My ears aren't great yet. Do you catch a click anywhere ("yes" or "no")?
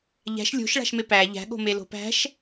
no